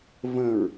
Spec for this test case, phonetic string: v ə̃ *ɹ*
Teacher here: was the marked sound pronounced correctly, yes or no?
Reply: yes